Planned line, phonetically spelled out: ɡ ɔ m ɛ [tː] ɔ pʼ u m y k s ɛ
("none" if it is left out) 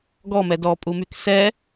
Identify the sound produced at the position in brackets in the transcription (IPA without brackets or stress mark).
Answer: d